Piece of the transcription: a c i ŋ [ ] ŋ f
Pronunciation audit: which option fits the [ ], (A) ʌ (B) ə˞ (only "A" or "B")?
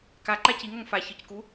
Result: A